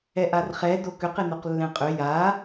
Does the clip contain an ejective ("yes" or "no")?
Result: yes